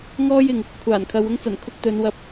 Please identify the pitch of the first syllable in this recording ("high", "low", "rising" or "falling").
high